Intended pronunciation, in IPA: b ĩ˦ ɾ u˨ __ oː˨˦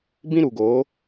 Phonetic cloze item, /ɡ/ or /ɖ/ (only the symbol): ɡ